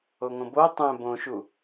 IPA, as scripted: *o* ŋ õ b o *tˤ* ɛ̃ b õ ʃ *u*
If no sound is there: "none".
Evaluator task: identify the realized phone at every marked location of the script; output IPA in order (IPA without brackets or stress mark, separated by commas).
o, tˤ, u